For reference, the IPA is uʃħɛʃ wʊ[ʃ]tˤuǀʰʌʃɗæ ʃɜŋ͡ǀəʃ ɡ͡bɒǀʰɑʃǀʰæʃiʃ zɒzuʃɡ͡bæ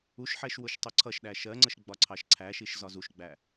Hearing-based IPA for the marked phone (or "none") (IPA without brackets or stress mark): ʃ